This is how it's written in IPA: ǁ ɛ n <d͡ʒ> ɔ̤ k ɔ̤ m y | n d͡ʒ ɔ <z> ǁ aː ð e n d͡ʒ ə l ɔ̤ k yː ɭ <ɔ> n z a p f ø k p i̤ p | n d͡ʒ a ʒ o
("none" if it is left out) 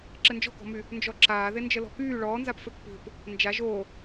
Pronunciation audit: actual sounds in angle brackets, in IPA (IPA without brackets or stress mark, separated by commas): d͡ʒ, none, ɔː